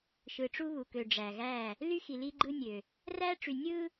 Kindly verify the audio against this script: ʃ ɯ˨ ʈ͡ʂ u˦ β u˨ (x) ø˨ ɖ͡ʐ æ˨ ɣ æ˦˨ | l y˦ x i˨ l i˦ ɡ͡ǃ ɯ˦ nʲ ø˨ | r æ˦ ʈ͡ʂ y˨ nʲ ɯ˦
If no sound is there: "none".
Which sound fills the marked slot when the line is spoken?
k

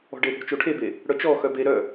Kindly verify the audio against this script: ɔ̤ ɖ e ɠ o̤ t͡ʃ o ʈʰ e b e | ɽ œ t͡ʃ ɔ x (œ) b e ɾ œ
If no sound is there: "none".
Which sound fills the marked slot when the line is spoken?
œ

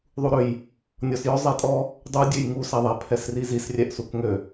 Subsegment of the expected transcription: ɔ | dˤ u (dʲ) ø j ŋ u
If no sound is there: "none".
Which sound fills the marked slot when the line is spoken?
dʲ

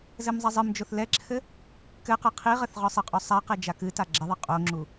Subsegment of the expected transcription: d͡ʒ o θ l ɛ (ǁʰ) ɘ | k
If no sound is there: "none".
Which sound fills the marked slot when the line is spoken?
ǁʰ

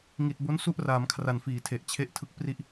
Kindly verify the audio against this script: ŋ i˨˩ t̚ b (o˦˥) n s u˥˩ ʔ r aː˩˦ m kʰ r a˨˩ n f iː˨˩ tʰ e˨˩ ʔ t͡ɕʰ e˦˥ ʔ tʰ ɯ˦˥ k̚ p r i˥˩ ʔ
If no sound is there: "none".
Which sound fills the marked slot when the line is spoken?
o˦˥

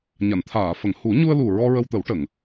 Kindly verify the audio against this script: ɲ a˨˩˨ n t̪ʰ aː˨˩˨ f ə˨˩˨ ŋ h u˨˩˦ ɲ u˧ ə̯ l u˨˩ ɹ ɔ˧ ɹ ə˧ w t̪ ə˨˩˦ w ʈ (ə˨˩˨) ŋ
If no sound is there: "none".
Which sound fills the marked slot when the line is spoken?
ə˨˩˨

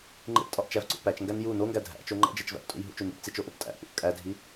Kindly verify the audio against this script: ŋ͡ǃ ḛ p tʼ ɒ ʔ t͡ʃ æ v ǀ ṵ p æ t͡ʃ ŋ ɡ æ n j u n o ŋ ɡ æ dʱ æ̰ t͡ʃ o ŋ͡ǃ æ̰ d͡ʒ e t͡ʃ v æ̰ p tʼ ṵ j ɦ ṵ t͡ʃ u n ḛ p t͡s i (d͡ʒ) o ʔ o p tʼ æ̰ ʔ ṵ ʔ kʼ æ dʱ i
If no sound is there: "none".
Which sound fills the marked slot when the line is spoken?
t͡ʃ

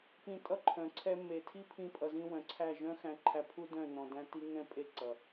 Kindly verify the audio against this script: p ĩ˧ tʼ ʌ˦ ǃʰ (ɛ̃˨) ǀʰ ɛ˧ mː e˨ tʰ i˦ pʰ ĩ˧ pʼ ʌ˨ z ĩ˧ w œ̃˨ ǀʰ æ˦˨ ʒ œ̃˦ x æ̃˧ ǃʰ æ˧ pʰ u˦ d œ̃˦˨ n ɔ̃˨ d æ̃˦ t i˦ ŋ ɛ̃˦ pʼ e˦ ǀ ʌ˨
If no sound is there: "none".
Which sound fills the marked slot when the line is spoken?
œ̃˨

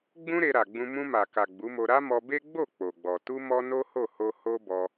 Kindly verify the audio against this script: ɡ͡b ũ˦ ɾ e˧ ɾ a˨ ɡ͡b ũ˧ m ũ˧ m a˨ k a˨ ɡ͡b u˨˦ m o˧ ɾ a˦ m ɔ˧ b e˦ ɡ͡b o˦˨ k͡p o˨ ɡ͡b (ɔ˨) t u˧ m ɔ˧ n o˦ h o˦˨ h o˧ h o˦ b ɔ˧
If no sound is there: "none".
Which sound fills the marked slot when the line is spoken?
ɔ˨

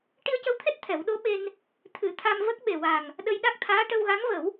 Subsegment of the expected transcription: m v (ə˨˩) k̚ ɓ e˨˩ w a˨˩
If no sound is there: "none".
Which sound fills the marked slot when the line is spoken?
ə˦˥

